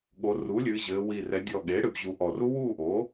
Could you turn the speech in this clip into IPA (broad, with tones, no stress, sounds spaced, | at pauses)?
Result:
ɠ o˩˧ r u˩˥ lʲ ɨː˩˧ ʑ ɘː˩˧ w i˨˩ r ɛ˩˧ dʲ ɔ˨˩ ɠ e˩˥ ɽ ɨ˩˧ b ʑ u˩˧ ʔ ɔ˨˩ r u˦˥ w uː˥˩ ʔ o˩˥